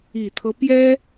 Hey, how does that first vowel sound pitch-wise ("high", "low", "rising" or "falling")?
low